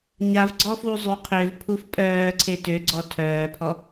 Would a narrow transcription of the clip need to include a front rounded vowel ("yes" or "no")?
yes